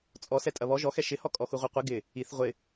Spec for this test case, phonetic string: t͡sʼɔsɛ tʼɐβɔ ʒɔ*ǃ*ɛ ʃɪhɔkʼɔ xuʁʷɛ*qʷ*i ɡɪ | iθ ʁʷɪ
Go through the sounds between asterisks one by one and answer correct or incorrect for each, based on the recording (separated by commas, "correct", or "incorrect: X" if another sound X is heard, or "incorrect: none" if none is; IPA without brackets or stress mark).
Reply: incorrect: x, correct